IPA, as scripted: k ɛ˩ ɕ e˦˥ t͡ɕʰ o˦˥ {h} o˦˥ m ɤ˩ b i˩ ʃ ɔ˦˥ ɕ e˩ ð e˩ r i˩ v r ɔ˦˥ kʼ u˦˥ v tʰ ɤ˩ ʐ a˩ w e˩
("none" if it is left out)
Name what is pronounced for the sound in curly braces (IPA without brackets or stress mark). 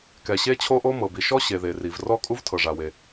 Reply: ʔ